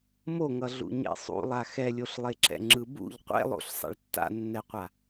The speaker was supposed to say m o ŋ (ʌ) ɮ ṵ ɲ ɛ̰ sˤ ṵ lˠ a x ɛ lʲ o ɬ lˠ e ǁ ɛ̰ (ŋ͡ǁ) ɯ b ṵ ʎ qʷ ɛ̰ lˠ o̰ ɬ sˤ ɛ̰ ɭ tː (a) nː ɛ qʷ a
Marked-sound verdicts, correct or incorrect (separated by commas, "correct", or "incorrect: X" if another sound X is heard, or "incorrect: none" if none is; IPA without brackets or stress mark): correct, correct, incorrect: a̰